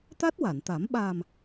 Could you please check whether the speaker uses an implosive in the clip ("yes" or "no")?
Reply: yes